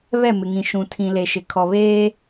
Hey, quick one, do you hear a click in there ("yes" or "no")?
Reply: no